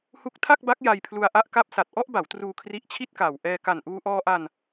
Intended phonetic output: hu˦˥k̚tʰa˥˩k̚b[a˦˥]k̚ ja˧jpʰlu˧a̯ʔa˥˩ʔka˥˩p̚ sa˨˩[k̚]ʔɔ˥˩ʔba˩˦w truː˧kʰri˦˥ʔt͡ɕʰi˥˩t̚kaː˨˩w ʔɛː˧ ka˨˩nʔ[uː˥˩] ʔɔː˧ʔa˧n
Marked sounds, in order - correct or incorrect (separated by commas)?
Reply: correct, incorrect, incorrect